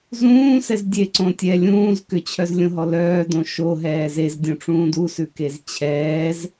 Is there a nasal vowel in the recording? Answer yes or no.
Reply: yes